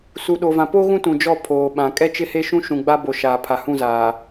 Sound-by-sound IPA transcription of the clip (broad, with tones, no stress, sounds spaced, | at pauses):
s u˨ ɗ o˨ v ã˨ p o˦ ɣ ũ˦ t ũ˨ d͡ʒ ɔ˦˨ pʰ oː˨ ɓ ã˨ kʼ ɛ˦ t͡ʃ ɪ˦ h e˦ ʃ ũ˦ ʃ ũ˨ ɡ͡b a˦ b o˨ ʃ aː˨ pʰ a˨ h ũ˦˨ z aː˨